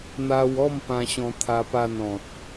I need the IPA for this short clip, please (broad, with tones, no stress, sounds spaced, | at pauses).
n̪ a˧ w ɔ˥˧ m p ã˦ ɕ ɔ̃˦ t̪ʰ a˦ p a˥˧ n ɔ̃˨ t̚